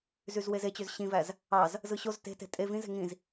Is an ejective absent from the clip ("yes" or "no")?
no